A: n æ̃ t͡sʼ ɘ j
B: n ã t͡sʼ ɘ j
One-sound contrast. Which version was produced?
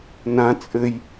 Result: B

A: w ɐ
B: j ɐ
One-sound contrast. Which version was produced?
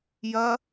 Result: B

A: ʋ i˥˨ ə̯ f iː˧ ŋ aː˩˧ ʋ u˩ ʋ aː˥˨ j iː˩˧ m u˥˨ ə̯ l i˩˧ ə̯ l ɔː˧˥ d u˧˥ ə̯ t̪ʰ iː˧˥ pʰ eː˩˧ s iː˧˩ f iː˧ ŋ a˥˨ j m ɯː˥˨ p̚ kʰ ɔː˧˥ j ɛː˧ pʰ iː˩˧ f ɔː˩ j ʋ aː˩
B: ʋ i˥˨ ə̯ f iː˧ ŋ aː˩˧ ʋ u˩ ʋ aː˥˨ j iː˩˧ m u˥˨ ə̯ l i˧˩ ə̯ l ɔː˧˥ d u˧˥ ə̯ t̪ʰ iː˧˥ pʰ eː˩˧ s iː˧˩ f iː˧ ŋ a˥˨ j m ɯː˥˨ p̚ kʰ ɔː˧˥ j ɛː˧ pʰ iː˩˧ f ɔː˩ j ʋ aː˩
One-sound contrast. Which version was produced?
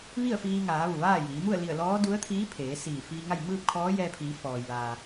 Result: B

